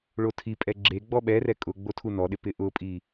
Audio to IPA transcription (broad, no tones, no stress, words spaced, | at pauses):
ɭotʰipʼɛ ɡ͡ǁe ɡ͡bɔɓɛrɛ kʼʊɡ͡bo tʰunɔɗɪ pɪʔʊpʼi